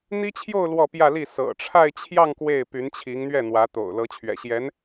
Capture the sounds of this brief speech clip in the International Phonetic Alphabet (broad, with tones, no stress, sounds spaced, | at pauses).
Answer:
n̪ i˥ t͡ɕʰ j o˥˧ ʊ̯ l w ɔ˥˧ p j ä˥˧ l i˥˩ s ɤ̰˨˩ ʈ͡ʂʰ a˥˧ ɪ̯ t͡ɕʰ j ɑ˥˧ ŋ k w e˥˩ ɪ̯ p y˧˥ n t͡ɕʰ i˧˥ ŋ n̪ ɥ ɛ˥˩ n̪ w ä˧˥ t̪ o̰˨˩ ʊ̯ l ɤ˧˥ t͡ɕʰ ɥ ɛ̰˨˩ ɕ j ɛ˧˥ n